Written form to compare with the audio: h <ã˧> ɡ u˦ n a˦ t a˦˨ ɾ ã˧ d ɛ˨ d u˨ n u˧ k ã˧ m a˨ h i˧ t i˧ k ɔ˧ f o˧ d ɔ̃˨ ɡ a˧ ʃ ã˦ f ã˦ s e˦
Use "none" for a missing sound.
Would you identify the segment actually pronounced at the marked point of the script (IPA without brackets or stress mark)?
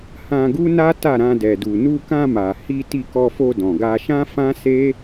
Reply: ã˧